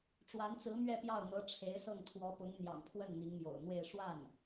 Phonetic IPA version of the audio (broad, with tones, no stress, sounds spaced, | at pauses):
ʈ͡ʂ w a˧˥ n t͡s ɹ̩˧˥ m ɥ ɛ˥˧ p j ɑ˥˩ ʊ̯ n̪ ɤ˧˥ ʈ͡ʂʰ e˧˥ ɪ̯ s ɤ˥˩ ŋ t̪ʰ w ɔ˧˥ p ʊ˧˥ ŋ n̪ j ɑ̰˨˩ ŋ pʰ w ə˥˩ n n̪ i˧˥ ŋ m j o̰˨˩ ʊ̯ n̪ w e˥˧ ɪ̯ ʂ w a˥˩ n